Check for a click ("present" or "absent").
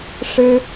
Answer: absent